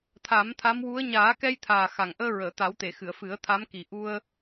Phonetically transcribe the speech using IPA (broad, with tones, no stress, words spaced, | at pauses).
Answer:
t̪ʰa˨˩˦mt̪ʰa˧˥mwu˧˥ə̯ ɲaː˨˩˦kɛ˧jt̪ʰaː˨˩ xa˨˩ŋʔəː˧ ɹəː˨˩˨t̪a˨˩˦wt̪e˨˩˨xɨ˨˩˨ə̯ fɨ˨˩˦ə̯ t̪ʰa˧˥m ki˨˩ ʔu˧ə̯